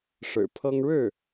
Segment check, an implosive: absent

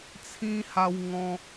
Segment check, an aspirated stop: present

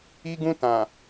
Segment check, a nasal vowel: present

